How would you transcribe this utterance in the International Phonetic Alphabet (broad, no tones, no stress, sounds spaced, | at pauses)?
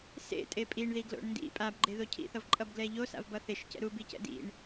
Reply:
s ḛ tʼ e pʼ i ɳ ð i ɡ l o̰ ɳ n d ḭ pʼ a b ɡ͡ǃ e ð o cʰ ḭ θ ʌ v ǃʼ ʌ b ɡ l ɛ ʎ o s a̰ v b ʌ θ e ʃ c ɛ̰ ɾ u b i c ɛ̰ d ḭ ɳ